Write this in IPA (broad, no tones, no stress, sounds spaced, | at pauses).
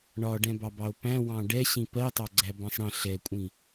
ɳ ɒ ɖ ɛ̃ b ɑ b ɑ o̯ p æ̃ w ɑ̃ ɖ ɛ ɕ ĩ p ɜ tˤ ɑ ɡ͡ǀ æ b ɑ̃ sˤ ɽ ə̃ ɬ ɛ kʷʼ ĩ